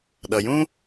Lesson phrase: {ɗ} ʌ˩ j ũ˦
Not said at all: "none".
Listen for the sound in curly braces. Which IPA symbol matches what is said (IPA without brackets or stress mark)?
ɗ